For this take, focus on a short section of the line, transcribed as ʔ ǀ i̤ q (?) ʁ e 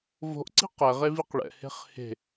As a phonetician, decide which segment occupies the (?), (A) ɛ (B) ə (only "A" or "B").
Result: A